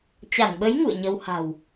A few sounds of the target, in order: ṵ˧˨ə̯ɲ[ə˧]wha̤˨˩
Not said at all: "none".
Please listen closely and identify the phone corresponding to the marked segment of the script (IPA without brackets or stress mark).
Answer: ə˧